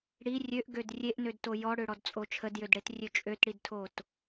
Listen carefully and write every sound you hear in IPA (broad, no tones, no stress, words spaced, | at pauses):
ɽi rʲøʔɡød rʲeʔnødto jɔɽøɽɔdt͡sʼo t͡ʃʰədjødɽetrʲø t͡ʃʼøtɽidtʰot